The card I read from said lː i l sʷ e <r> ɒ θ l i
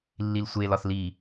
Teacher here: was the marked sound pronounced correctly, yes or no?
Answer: no